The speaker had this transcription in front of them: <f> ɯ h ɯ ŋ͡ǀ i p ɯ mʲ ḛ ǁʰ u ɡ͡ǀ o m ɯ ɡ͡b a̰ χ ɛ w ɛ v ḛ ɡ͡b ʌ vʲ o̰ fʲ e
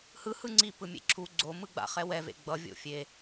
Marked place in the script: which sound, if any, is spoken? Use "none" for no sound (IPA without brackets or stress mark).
h